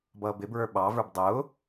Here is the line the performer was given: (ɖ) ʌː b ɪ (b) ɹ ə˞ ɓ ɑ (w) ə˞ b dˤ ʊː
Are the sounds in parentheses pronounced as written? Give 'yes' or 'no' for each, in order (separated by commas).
no, yes, no